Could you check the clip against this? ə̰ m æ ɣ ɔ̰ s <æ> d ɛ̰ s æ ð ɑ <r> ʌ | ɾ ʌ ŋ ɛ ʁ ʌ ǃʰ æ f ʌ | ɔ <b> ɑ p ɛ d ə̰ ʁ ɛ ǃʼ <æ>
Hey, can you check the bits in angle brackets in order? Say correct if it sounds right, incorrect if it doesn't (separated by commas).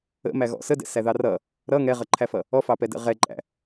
incorrect, correct, incorrect, incorrect